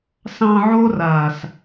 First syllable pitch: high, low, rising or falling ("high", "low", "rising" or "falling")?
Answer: low